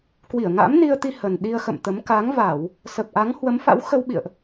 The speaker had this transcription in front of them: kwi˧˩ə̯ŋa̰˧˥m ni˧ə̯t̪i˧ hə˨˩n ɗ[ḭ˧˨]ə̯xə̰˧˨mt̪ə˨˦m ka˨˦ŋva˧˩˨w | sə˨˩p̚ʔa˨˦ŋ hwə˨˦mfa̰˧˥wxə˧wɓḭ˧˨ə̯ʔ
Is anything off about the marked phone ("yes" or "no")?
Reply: yes